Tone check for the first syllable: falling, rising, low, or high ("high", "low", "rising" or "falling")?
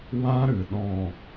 high